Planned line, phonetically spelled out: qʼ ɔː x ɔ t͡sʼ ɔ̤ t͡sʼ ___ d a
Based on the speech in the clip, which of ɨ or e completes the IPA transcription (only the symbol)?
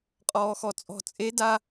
e